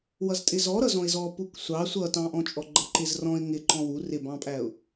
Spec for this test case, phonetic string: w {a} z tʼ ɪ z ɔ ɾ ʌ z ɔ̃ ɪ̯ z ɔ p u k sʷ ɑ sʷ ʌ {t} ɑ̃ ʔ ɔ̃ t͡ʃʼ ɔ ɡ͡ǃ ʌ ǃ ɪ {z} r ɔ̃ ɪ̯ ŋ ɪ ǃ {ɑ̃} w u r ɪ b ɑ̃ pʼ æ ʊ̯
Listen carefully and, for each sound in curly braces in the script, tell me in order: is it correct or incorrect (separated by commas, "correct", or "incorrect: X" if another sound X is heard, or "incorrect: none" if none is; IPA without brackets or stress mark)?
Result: incorrect: ʌ, correct, correct, incorrect: ɔ̃